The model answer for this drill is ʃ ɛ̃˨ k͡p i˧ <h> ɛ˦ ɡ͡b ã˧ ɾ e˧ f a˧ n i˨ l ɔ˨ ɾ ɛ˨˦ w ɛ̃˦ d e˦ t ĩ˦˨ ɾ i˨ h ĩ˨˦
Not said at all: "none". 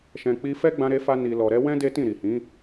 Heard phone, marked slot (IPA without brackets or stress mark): f